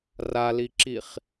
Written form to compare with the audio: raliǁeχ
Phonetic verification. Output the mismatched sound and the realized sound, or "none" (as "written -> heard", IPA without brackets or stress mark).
e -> i